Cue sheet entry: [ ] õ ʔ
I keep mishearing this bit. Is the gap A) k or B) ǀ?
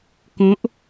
A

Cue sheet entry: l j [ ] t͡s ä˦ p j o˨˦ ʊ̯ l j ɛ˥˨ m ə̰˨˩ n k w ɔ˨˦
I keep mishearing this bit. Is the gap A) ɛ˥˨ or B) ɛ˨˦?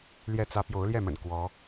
A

